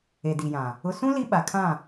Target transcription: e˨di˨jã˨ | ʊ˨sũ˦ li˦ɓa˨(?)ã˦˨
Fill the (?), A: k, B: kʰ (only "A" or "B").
B